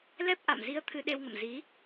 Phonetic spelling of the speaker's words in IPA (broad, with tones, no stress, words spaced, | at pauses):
lɛ˦˥p̚ ʔa̰˧˨mzi˧ə̯ t̪ʰɨ˧ɗe˧wŋə̰˧˨m zi˨˦